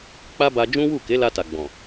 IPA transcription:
k͡p a˦ b a˧ d͡ʒ ũ˦ w u˦˨ k e˨˦ l a˧ t a˨ ɡ͡b ɔ̃˨

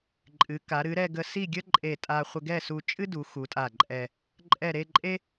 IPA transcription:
ǃʼ ɨ˩˧ k a˩˧ ɾ ɨ˩˧ ɾ ɛ˧ ɡ ə˧ s i˥˧ ɡʲ ə˥ ǃʼ e˧˩ tʼ a˧ χʷ ə˧ ɡ ɛ˥˧ s u˧ t͡ʃʼ ɨ˥ d u˩˧ x u˩˧ tʼ a˧˩ ǃʼ ɛ˧ | ǃʼ ɛ˧˩ ɾ e˥˧ ǃʼ e˥

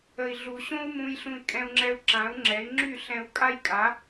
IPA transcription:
ə˨ i̯ ɮ u˨ ɕ õ˦ u̯ m ũ˧ j ɬ ũ˧ i̯ kʼ ɛ̃˧ u̯ ŋ͡ǁ ɛ˧ u̯ ǁ ã˨˦ u̯ ŋ͡ǁ ɛ˨˦ i̯ ŋ͡ǁ y˦˨ ɬ ɛ̃˧ u̯ kʼ a˦ j kʼ a˨˦

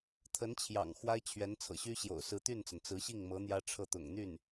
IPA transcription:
t̪ʰ ə˧˥ n t͡ɕʰ j ɑ̰˨˩ ŋ x w a˥ ɪ̯ t͡ɕʰ ɥ ɛ˧˥ n t͡sʰ ɤ̰˨˩ ɕ y˥ ɕ j o̰˨˩ ʊ̯ s ɹ̩˧˥ t̪ y˥˩ n t͡s ə˩ n t͡s ɹ̩˧˥ ɕ i˥˩ ŋ m ɤ˧˥ n̪ j ä˥ ʈ͡ʂʰ ɤ˥˩ t̪ ʊ̰˨˩ ŋ n̪ y˥˩ n

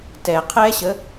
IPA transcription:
t ɛ qʰ ɛ ɕ ə

